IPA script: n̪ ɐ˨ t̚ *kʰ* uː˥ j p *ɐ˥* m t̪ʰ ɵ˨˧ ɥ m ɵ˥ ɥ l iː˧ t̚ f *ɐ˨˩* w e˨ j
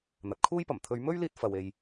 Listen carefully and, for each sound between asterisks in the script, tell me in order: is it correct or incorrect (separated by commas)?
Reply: correct, incorrect, incorrect